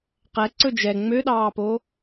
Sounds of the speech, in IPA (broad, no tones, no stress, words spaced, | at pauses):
qɛ ǀɵd͡ʒɛ ŋ͡møɗɑːpo